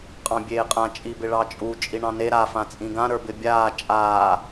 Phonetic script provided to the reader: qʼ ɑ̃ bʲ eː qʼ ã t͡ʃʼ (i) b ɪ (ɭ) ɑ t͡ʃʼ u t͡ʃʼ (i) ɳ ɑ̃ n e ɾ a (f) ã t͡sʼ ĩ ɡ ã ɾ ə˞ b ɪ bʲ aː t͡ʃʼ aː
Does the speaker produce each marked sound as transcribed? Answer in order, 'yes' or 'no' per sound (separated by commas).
yes, yes, yes, yes